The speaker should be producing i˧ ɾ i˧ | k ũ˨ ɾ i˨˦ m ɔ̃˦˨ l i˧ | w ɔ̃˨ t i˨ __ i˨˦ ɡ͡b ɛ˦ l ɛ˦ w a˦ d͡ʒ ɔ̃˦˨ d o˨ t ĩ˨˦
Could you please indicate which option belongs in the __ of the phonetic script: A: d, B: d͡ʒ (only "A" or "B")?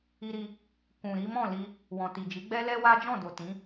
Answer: B